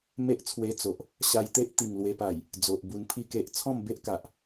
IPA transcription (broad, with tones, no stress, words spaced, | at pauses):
me˦ʔt͡sʰwe˧ t͡so˨ʔ | ɕa˧jt̪e˦ʔ t̪i˨˩ŋlwe˧pa˨˩j | d͡zo˨ʔbu˧npʰi˥˧ke˦ʔ t͡sʰɔ̃˥˧mbe˦ʔka˨ʔ